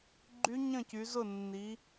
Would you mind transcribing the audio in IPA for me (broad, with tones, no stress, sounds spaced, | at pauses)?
ɡ͡ǃ y˦˥ ɲ ə̃˥˨ c y˨˦ z ʊ˥˨ nː i˨˦